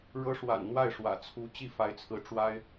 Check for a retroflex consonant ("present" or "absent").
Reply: present